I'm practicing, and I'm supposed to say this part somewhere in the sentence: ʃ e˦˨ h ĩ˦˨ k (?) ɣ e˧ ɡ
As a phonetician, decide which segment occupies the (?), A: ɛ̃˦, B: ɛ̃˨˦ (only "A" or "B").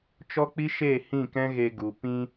A